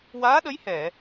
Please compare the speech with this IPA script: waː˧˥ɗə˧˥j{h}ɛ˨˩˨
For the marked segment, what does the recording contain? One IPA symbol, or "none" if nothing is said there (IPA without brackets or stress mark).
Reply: h